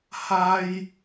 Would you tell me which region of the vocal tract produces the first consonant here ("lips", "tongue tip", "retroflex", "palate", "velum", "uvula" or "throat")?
throat